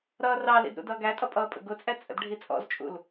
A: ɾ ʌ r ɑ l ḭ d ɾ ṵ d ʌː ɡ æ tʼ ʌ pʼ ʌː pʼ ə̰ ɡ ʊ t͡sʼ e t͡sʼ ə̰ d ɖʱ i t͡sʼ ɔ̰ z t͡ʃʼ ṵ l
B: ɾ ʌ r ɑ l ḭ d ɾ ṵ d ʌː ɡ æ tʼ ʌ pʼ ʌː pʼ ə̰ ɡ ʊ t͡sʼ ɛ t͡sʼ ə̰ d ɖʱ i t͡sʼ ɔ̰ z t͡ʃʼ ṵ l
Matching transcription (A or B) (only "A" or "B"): B